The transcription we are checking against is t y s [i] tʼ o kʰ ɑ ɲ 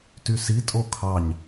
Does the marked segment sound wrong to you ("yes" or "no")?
no